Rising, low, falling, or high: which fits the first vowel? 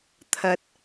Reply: rising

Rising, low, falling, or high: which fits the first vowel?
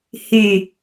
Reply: low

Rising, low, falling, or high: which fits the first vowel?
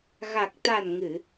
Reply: low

